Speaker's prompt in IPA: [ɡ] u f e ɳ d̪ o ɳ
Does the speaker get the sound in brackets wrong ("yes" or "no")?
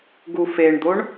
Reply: no